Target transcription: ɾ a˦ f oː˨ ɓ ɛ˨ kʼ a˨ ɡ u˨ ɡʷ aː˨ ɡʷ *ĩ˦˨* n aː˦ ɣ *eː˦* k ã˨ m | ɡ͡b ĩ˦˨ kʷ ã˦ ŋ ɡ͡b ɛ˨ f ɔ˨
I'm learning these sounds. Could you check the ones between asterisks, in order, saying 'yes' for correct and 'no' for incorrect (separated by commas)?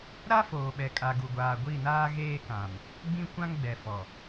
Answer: no, yes